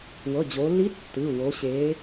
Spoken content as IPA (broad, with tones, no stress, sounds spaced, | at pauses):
w ɤ˩˧˩ d͡ʑ o˩˧ lː i˧˥ tː ɯ˩˧˩ w o˩˧ ɕ e˩˧